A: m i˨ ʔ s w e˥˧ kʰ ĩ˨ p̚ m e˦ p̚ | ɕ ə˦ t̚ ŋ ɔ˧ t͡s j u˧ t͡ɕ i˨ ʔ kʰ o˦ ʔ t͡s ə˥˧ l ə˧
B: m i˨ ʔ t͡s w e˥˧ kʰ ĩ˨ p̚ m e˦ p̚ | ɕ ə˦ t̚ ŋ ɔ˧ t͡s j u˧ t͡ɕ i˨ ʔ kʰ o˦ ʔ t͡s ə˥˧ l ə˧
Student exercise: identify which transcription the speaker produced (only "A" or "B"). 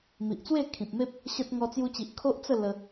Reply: B